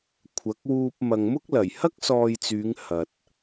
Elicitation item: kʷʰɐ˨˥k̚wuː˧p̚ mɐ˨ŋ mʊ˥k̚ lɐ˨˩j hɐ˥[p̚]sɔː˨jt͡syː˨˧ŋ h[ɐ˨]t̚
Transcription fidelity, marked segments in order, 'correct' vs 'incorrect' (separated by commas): incorrect, correct